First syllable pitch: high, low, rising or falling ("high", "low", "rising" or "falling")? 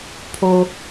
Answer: low